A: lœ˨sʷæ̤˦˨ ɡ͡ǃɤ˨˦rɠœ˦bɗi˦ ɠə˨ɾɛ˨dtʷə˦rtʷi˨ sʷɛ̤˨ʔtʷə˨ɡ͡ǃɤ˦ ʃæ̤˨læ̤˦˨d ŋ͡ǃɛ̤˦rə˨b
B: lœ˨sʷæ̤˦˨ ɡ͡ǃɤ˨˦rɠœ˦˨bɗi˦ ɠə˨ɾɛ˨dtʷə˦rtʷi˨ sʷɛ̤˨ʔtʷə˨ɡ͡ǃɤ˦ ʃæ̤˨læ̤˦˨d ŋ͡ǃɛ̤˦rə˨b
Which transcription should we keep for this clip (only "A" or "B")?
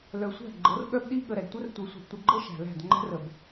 A